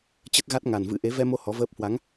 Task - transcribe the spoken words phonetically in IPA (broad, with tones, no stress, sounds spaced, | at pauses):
t͡ɕ ə˦˥ t̚ ɣ a˦˥ t̚ ŋ a˨˩ n v ɨ̰˧˥ ʔ e˨˦ v ɛ˧ m o˧ h ɔ˨˦ v əː˦˥ p̚ h w a˨˦ ŋ